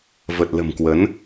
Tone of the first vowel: low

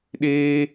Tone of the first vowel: high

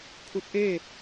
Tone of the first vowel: rising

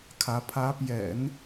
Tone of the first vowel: rising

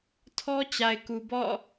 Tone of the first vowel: high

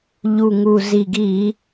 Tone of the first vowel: low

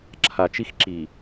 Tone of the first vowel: low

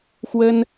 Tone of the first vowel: high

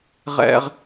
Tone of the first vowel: high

